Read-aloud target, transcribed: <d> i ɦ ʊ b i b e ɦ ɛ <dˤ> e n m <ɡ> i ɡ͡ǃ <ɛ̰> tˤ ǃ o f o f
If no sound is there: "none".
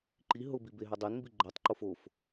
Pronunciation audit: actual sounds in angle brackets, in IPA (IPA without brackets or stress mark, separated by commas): ǃ, dˤ, b, ɛ